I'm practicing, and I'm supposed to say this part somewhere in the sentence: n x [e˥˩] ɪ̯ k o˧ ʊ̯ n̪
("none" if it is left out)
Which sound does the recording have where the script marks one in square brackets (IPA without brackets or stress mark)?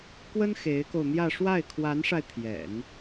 e˧˥